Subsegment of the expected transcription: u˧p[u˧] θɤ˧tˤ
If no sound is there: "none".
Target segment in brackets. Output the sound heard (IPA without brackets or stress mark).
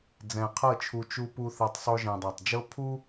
u˧